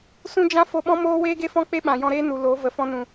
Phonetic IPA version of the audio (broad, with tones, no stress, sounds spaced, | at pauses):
s ũ˦ d͡ʒ ã˦ f o˧ ɓ ɔ̃˦ m oː˦ w eː˦ ɡ e˦ f ɔ̃˦ k͡p e˦ ɓ ã˨ j ɔ̃˧ ɾ eː˦ n u˨ l o˨˦ v ə˨ f ɔ̃˧ n ũ˨